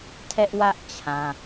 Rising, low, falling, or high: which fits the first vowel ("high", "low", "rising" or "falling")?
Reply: high